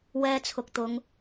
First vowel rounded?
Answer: no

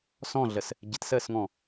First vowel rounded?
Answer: yes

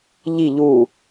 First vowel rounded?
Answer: no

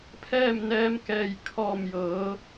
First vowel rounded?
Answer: no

